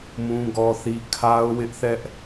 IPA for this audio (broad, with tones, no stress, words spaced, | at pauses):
mũ˦ɡɔ˦θi˦ kʰa˦ʊ̯wɪ˦ʔθɛ˦ʔ